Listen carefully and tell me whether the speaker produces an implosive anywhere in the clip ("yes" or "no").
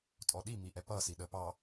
yes